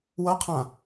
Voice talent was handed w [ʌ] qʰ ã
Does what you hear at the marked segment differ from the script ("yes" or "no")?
no